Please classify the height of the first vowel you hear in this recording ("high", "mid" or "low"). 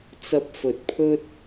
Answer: low